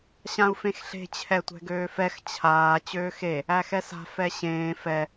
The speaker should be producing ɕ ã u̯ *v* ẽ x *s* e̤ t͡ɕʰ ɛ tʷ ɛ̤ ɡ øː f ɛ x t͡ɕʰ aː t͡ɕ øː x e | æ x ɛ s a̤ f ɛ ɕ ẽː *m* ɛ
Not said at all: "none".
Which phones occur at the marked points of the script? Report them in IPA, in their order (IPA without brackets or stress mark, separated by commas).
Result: f, ɬ, f